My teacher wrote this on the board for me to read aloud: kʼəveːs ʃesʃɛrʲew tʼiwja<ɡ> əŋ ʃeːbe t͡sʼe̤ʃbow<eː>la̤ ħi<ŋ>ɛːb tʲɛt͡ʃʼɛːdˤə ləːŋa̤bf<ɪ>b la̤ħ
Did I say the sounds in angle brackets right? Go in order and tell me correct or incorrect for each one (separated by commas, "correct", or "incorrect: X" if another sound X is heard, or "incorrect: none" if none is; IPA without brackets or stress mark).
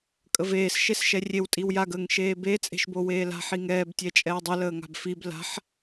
correct, correct, correct, incorrect: i